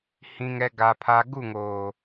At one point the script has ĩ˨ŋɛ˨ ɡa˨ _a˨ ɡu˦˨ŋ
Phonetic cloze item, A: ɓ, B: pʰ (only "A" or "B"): B